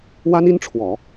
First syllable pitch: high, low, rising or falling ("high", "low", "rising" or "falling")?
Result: high